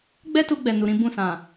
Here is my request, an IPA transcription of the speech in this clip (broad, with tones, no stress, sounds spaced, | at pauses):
ɡ͡b ɛ˦ t u˧ ɡ͡b ɛ˨ n u˨ ɾ ĩ˧ b ũ˧ s ã˨